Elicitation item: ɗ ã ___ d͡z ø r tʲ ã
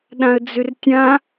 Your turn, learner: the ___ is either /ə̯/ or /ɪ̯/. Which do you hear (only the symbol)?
ə̯